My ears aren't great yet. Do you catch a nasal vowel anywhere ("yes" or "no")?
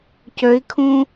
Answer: yes